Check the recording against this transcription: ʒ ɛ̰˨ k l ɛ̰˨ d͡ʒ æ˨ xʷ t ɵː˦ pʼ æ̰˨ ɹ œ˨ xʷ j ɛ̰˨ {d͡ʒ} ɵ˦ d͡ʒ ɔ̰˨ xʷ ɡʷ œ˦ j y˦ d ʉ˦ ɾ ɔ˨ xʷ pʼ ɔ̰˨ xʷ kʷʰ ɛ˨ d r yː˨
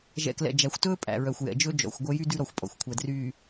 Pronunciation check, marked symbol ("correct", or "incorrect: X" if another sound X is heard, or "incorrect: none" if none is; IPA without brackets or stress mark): correct